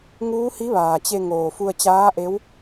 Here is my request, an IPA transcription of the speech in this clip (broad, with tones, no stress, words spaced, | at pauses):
ŋuː˧˥hi˧˥ʋaː˩t͡ɕe˧ ŋoː˩fu˧ə̯t͡ɕaː˧˥ʔe˧˥w